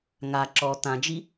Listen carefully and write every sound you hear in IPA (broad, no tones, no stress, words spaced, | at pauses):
ŋa ǁɔ t̪ãd͡ʒi